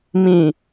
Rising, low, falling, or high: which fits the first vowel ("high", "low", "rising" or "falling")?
low